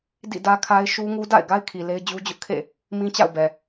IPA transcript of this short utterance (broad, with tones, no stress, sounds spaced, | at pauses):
d ḭ˦˨ d ä˦ kʰ a˦ ɪ̯ ʃ u˦ ŋ u˦ d a̰˦˨ ɪ̯ ɡ a˦ ɪ̯ kʰ i˨ l e˦ ɪ̯ d͡ʑ u˦ d͡ʑ ʊ˦ ʔ kʰ ḛ˦˨ | m ĩ˦ t͡ɕ a̰˦˨ ʊ̯ b ɛ˨